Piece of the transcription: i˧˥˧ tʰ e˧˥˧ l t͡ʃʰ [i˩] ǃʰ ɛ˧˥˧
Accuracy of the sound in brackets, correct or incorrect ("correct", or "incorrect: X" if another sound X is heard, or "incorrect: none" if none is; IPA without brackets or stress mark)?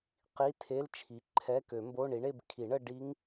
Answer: incorrect: i˩˥